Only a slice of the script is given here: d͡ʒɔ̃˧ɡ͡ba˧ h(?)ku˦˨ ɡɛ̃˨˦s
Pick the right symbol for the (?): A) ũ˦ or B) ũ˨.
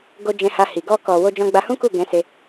A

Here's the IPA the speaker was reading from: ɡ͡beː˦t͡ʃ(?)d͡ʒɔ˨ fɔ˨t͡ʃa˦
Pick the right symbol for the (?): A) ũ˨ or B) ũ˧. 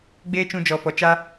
B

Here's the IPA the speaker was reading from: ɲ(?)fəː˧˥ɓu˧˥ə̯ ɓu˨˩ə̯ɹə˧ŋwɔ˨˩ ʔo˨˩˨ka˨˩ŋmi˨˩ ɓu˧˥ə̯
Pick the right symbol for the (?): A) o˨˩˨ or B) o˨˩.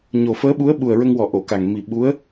B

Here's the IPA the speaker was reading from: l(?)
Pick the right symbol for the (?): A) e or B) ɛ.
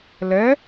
B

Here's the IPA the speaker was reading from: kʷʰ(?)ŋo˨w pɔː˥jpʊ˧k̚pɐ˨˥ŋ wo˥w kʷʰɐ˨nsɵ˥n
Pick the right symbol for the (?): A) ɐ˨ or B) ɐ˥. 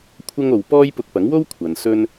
B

